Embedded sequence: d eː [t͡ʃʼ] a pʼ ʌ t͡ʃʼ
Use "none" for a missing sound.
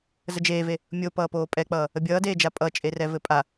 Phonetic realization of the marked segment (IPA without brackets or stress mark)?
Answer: d͡ʒ